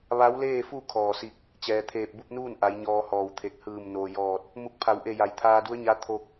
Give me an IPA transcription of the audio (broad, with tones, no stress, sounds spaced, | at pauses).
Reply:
ʋ a˧˥ w l eː˥˨ f u˥˨ kʰ ɔː˧˩ s i˧ k̚ | t͡ɕ ɛː˩ t̪ʰ eː˧˩ p̚ b u˥˨ p̚ n uː˥˨ n ʔ a˩˧ j ɲ ɔː˧ h ɔː˧˩ w t̪ʰ e˧˩ k̚ h ɯː˧˩ m n oː˩ j ɔː˧˩ t̚ | m u˧˩ k̚ pʰ a˩˧ w ʔ e˧˩ j a˩˧ j t̪ʰ aː˧ d u˧˥ ə̯ ɲ a˧˥ t̪ʰ o˧ k̚